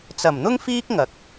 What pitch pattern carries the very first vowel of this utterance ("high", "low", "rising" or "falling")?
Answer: low